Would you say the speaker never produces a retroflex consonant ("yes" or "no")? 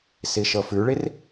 no